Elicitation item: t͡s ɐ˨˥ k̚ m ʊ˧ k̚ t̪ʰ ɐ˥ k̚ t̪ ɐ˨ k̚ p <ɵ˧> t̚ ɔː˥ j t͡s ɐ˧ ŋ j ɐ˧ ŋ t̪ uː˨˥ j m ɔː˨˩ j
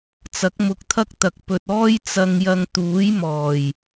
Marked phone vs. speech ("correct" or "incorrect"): incorrect